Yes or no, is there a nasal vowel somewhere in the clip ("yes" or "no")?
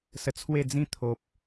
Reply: yes